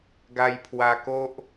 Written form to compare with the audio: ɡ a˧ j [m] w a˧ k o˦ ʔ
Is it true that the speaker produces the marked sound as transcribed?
no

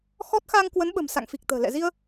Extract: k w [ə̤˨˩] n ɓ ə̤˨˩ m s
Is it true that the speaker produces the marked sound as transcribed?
no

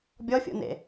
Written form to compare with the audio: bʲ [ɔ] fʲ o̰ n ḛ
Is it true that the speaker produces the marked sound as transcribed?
yes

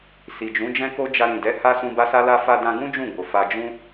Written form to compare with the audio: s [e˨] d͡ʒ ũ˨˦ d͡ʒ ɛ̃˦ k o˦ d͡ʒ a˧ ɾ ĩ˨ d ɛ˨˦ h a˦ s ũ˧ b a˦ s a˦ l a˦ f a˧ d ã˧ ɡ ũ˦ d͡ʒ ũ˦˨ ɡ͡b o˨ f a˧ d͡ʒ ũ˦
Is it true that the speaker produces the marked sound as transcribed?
no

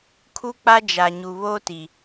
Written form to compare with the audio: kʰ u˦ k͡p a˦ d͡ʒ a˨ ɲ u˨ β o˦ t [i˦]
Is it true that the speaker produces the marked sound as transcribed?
no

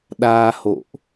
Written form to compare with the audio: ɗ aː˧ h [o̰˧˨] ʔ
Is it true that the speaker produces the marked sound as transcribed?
yes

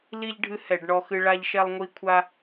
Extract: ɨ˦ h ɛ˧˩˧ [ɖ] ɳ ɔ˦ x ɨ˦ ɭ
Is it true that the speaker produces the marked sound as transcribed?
yes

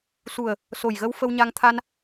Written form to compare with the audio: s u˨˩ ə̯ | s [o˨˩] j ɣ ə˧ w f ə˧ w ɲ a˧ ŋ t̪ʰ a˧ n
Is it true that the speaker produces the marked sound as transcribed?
yes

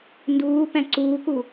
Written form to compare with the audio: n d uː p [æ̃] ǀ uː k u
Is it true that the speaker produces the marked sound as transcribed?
yes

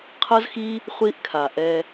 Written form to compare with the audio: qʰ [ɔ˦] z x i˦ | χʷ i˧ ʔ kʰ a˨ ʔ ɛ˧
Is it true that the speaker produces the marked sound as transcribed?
no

